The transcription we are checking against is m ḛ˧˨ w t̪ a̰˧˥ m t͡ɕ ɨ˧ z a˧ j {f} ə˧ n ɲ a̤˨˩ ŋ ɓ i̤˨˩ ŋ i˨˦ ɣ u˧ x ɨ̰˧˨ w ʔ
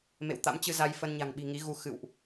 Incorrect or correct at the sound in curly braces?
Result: correct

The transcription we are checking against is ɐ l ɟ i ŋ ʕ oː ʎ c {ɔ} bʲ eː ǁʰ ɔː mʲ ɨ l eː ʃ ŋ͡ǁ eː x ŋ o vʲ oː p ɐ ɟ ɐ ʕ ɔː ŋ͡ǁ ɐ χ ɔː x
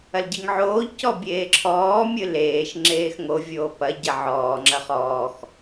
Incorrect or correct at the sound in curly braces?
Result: correct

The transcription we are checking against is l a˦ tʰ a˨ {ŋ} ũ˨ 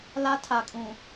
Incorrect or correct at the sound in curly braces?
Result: incorrect: kʼ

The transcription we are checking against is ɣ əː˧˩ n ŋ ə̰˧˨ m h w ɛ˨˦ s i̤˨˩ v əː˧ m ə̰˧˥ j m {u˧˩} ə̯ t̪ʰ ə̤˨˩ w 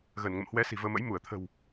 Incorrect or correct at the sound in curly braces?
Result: correct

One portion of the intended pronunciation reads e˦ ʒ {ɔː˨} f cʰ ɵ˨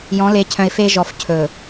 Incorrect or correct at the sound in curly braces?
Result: incorrect: ɔ˨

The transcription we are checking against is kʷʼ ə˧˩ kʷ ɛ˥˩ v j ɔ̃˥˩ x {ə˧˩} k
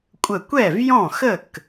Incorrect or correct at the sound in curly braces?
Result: incorrect: ə˥˩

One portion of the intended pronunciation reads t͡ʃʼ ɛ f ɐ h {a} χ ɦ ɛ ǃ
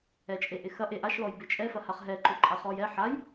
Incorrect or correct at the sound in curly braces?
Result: correct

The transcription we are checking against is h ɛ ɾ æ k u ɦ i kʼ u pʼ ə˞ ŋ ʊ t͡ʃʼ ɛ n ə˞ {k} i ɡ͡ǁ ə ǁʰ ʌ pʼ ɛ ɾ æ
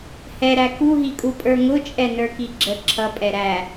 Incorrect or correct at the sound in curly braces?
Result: correct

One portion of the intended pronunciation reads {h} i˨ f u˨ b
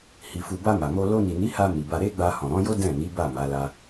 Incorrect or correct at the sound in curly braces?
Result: correct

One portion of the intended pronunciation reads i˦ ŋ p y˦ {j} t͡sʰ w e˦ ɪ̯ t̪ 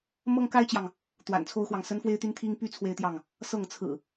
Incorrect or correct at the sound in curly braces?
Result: incorrect: none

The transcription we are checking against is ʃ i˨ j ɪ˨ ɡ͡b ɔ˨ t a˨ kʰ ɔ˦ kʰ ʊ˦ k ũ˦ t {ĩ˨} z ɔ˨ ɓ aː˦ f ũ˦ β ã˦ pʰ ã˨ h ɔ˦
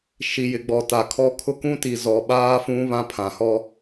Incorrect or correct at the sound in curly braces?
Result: incorrect: i˨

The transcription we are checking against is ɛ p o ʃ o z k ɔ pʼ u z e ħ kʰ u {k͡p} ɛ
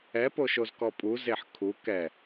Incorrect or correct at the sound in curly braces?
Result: incorrect: k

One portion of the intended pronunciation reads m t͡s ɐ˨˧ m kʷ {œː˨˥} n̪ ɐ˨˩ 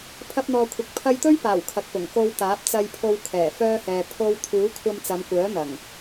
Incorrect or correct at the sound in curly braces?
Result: correct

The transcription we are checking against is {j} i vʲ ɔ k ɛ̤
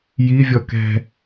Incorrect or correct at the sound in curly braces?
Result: correct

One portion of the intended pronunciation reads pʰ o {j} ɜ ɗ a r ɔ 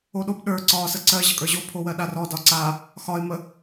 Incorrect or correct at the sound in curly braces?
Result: incorrect: w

